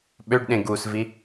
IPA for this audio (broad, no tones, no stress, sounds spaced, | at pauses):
ɓ ø ɖ ɗ ẽ ɡ u s v i